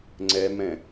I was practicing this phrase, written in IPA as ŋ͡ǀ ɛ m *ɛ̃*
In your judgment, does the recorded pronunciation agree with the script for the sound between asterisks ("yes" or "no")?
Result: yes